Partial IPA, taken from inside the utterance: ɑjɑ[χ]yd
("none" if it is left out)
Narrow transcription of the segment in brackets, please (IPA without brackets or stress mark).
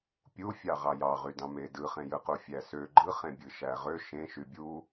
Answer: ʁ